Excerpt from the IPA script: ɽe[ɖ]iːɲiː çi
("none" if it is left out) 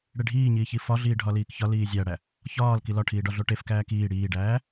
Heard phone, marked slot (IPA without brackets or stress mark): ɖʱ